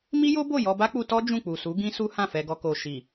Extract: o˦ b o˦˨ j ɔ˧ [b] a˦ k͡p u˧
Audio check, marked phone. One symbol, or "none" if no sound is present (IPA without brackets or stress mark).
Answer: b